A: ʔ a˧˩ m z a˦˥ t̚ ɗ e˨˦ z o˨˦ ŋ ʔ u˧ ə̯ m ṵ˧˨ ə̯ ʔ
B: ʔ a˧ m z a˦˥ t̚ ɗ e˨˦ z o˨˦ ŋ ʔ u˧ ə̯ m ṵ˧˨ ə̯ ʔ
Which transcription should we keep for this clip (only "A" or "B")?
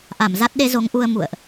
A